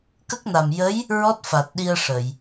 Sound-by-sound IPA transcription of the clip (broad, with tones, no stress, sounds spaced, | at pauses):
k ə˦˥ k̚ n a˨˩ m j ə˧˥ j | ɹ ɔ˦˥ t̚ f a˨˩ t̚ ɗ i˧ ə̯ ʂ ə˨˩˨ j